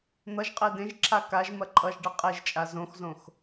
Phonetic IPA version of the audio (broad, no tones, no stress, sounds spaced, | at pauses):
n̪ ʌ ʒ qʼ e d ẽ ʒ ǁʰ a k a ʒ m ɐ ǃʼ ʌ ʒ ɖ ʌ qʼ e ʒ t͡ʃʼ a z õ x z õ x